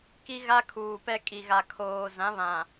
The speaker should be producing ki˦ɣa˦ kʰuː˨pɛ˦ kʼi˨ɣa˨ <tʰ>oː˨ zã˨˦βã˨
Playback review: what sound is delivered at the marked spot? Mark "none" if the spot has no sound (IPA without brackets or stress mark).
kʰ